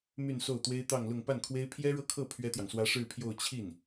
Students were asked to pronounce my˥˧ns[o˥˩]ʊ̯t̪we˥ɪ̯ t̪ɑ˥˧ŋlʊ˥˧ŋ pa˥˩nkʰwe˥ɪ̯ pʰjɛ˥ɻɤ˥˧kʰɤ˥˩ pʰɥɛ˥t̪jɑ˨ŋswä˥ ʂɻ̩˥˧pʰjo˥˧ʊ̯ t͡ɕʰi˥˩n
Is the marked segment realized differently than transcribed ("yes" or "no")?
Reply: no